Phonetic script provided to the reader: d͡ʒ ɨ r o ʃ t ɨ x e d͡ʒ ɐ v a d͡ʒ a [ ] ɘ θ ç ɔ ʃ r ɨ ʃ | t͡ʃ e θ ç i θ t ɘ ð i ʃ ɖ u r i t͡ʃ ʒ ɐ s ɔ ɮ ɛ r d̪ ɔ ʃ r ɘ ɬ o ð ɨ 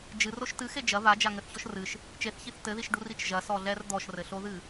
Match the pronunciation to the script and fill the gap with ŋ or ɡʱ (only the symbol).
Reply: ŋ